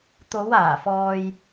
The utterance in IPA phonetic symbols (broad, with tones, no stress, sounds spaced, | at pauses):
t̪ o˨˧ w aː˨˩ f ɔː˨ j